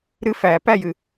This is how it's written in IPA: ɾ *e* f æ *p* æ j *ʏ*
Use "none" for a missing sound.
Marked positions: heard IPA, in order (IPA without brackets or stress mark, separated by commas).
ɨ, p, ɨ